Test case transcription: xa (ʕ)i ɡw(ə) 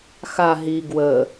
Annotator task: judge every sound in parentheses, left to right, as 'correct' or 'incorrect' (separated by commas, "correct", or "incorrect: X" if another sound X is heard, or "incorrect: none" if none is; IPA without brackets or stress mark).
incorrect: ɦ, correct